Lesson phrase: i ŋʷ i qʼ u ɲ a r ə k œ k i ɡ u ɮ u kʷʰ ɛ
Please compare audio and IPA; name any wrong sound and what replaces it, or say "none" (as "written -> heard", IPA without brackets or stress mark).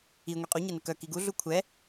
r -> n